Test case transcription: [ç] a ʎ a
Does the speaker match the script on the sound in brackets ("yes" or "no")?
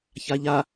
yes